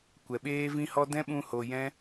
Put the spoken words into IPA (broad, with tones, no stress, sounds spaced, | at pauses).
kʷ ɛ˨ ɓ eː˦ v ĩ˦ h ɔ˦ d ɛ̃˦ ɓ ũ˧ h o˨ j ɛ̃˦